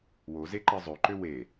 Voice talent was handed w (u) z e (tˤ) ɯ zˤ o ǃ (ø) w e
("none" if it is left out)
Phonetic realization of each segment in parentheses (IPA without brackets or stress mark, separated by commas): o, ǃ, ø